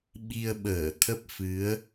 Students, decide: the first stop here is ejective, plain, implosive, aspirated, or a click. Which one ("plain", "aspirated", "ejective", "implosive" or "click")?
implosive